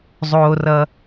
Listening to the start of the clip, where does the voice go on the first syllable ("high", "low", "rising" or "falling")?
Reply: low